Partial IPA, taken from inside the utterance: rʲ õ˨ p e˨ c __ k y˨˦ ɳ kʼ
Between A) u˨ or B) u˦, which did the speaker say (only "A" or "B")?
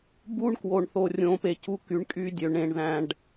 B